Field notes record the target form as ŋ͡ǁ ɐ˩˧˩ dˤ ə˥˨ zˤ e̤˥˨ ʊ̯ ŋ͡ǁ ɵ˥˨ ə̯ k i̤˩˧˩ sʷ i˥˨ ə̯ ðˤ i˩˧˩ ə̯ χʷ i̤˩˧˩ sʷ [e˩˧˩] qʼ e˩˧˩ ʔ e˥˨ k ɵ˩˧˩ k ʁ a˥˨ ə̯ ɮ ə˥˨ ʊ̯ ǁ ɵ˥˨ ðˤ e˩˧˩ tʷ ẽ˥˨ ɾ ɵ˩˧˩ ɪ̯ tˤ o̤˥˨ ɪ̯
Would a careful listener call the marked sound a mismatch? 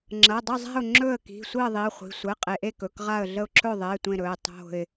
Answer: yes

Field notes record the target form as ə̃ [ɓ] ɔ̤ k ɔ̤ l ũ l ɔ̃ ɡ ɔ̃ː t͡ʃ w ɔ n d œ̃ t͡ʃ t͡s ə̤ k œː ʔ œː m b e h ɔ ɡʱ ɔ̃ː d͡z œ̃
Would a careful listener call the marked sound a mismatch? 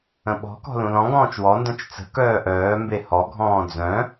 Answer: no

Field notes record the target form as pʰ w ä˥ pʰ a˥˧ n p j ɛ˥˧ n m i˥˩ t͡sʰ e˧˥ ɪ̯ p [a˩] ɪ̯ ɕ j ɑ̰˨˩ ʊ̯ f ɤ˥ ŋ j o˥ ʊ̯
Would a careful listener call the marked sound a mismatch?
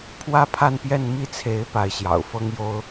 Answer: yes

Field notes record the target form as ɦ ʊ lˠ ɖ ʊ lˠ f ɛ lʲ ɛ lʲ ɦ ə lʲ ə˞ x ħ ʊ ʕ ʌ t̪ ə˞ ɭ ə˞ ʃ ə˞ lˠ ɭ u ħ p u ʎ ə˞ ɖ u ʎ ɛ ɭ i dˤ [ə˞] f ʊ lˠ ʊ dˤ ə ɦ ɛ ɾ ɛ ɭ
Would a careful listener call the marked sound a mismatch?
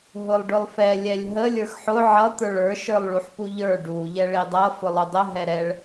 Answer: yes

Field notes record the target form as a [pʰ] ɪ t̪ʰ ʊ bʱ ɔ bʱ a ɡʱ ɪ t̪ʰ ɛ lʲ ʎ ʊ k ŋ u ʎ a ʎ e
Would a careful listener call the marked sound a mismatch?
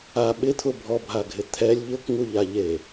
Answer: yes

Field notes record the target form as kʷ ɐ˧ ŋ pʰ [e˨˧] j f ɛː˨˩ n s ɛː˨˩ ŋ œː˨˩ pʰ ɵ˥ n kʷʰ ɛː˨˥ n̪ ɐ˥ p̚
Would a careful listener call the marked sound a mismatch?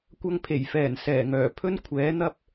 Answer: yes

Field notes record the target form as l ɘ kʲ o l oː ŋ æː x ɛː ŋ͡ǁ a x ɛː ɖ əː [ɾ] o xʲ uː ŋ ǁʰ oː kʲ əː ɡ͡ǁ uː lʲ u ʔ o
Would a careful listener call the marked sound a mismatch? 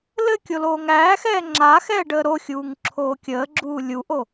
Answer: no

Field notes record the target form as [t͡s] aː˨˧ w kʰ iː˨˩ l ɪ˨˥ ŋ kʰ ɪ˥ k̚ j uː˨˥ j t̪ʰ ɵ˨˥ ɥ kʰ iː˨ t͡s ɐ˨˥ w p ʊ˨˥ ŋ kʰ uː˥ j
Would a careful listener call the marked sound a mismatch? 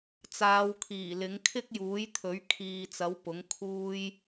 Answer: no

